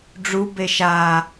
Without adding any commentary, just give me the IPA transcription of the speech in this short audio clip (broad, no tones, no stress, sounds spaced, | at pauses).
ɖ͡ʐ u b e ʃ a